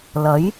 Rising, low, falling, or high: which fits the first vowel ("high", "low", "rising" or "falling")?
rising